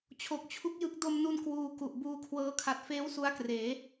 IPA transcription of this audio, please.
t͡ɕʰ o˨˩ k̚ t͡ɕʰ u˦˥ k̚ j ɯ˦˥ k̚ d o˧ m n u˧ n k w uː˧ k u˨˩ ʔ b uː˧ kʰ w ɤː˦˥ kʰ a˨˩ t̚ f eː˦˥ w s u˦˥ a̯ k r eː˩˦

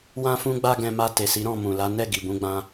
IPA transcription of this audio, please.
w ã˦ f ũ˦ ɡ͡b a˦ ɡ ɛ̃˧ m a˧ t e˨ s i˨˦ ɾ ɔ̃˦˨ m ũ˨ l a˨˦ n ɛ˦˨ ɡ i˨ b ũ˨˦ ɡ͡b ã˧

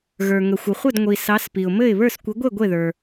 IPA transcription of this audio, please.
ɣ ə˞˩ ŋ ə˩ xʷ ɘ˩ χʷ ə˥˨ d ŋʷ i˩ s ɑ˨˦ s p i˩ ʊ̯ m ɘ˥˨ ɪ̯ β ə˞˥˨ s kʷ ɘ˨˦ ɡʷ e˥˨ ɡʷ e˥˨ ð ə˞˩

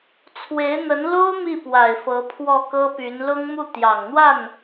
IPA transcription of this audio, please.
t͡sʰ w e˧˥ ɪ̯ n̪ ə˧˥ n l o˥ ʊ̯ m i˥˩ p w a˨˩ ɪ̯ f ɤ˧˥ pʰ w ɔ˥˩ k ɤ˥ p y˧˥ n l ʊ˥ ŋ m u˥˩ t̪ j ɑ˨˩ ŋ n̪ w a˥˩ n

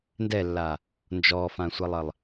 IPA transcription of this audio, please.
n d ɛ lː a | n d͡ʒ ɔ f ã sʷ ɛ lˠ ə lˠ

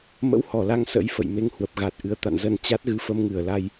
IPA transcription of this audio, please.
m ə̰˧˥ w h ɔ˧˩ l a˧ ŋ s ə̰˧˥ j f ə̰˧˨ j m e˧ ŋ h w ə˨˩ p̚ ɣ a˨˩ t̚ ʔ ɨ˨˦ ə̯ t̪ a̰˧˨ n z ə˧ n t͡ɕ a˦˥ t̚ ɣ ɨ˧ f ə˧ m ŋ ɨ˧˩ ə̯ l a˧ j

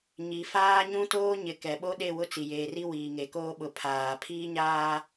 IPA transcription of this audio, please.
ɲ i˨ f aː˦ ɲ ũ˦ t oː˦ ɲ ɪ˨ k ɛ˨ ɓ o˦ ɗ e˦˨ w ʊ˦ t͡s i˨ j eː˨ r i˦ w iː˨ ŋ e˨ k oː˦ ɓ ʊ˨ pʰ aː˨ pʰ iː˦ ɲ aː˦

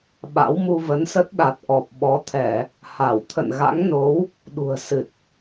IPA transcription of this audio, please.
ɓ a̰˧˥ w m u˧ v ə˨˦ n s ə˦˥ t̚ ɗ a˨˩ t̚ ʔ ɔ˨˩ p̚ ɓ ɔ˨˦ t̪ʰ ɛ˧˩˨ | h a˧˩ w t̪ʰ ə̰˧˨ n ɣ a̰˧˥ ŋ n o˨˦ w | ɗ ṳ˨˩ ə̯ s ɨ˨˩ t̚

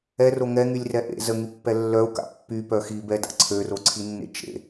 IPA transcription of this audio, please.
ɛ r o ŋ ɛ ŋ y lʲ r ɛ ʔ ḛ z ə ŋ y pː ɛ lː œ u̯ k a̰ pː y p œ x i b ɛ d a̰ ǀʰ ø r o ǀʰ i nː ḛ t͡ʃ ḛ

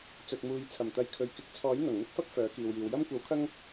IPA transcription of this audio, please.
t͡s ɵ˨ t̚ m uː˨ j t͡sʰ ɐ˨˩ m t̪ ɐ˨˧ j kʰ ɵ˨ ɥ k ɪ˨˥ k̚ t͡sʰ ɔː˨˥ j n̪ ɐ˨˩ ŋ n̪ ɪ˥ k̚ f ɐ˥ k̚ f œː˨˥ k iː˨ w j iː˨ w j ɐ˥ m kʷ ɐ˨˥ w kʰ ɐ˥ ŋ

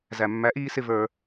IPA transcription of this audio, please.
z æ˨ mː æ˨˦ ʔ iː˧ s ɪ˧ v ə˞˧

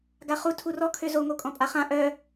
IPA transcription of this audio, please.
ɡ a χ u tʰ u r ɔ kʰ ø z o ŋ o kʼ ɔ̃ pʼ a χ ã ʔ œ

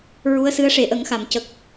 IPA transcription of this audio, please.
ɹ u˧˥ ə̯ s ɨ˧˥ ə̯ ʂ e˨˩˦ ʔ ə˨˩˦ ŋ x a˨˩˨ m c ə˨˩ k̚

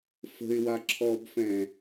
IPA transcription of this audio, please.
f ə̤ ɪ̯ w a ǁʰ ɔ b f ɛ̃

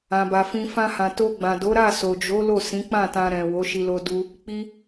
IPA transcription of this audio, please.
ã˧ b a˧ f ĩ˧ f ã˦ h ã˧ t o˧ ɡ͡b ã˨ d o˨˦ ɾ a˦˨ s o˨ d͡ʒ o˨˦ l o˦˨ s ĩ˨˦ k͡p ã˦˨ t ã˧ ɾ ɛ̃˨ w o˨˦ ʃ i˧ l o˧ d u˧ | k͡p i˧

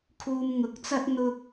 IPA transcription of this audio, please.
kʰ uː˧ m ŋ ʊ˨˥ k̚ t͡s ɐ˥ t̚ n̪ ʊ˥ k̚

